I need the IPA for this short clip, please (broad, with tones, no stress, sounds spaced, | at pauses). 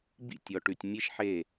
b ḭ˥˩ tʲ ɔ˩ ʈ ʉ˩ tʲ mʲ e˥ ʃ ħ e˥˩